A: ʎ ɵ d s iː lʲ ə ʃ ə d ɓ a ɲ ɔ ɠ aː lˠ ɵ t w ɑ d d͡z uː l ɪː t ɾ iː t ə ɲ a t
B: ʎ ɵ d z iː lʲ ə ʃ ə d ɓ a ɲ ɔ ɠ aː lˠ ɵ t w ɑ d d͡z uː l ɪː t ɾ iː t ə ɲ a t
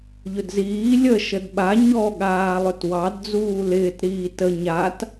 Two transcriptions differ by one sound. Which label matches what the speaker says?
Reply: B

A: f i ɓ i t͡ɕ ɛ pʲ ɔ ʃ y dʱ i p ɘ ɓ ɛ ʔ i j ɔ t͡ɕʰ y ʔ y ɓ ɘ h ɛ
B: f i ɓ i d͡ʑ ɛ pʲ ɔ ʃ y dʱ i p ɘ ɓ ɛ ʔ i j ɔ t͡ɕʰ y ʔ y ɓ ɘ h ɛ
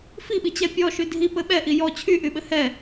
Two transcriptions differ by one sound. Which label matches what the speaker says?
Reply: A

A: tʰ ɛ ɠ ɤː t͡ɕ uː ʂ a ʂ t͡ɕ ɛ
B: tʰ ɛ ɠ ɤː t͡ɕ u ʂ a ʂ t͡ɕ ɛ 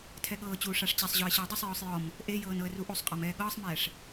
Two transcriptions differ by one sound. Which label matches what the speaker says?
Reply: A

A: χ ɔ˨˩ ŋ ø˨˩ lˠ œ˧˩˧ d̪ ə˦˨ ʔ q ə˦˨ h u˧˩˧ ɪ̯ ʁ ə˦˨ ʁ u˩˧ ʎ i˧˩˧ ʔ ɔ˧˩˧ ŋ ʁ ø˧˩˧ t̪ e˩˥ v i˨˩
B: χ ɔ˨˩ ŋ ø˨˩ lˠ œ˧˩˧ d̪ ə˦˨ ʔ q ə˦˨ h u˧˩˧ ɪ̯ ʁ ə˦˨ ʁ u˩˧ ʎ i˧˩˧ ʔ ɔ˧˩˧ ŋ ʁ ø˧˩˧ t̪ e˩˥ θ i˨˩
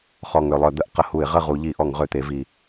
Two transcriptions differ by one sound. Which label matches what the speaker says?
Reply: A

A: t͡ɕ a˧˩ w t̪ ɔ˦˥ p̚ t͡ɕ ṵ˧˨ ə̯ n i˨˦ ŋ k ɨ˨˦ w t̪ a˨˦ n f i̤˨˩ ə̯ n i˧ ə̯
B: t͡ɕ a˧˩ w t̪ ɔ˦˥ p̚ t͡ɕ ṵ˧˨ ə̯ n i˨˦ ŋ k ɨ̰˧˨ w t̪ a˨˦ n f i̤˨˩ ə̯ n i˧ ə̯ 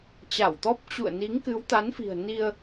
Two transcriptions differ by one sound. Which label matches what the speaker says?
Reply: A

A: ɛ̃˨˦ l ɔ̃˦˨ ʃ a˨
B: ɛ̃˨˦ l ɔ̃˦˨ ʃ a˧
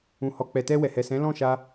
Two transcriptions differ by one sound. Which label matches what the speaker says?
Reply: B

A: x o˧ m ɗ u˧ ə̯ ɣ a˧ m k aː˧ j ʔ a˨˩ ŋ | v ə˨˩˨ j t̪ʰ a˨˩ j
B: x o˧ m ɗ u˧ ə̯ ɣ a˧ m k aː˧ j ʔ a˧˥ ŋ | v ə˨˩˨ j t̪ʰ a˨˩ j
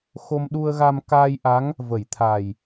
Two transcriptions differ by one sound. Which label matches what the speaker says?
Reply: B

